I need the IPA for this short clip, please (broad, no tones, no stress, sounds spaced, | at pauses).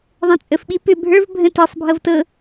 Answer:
ðˤ ɛ̃ t͡sʼ ə f ɓ i p ʏ bʱ ə˞ v bʱ ə̃ t e sˤ bʱ ɤ v t ɤ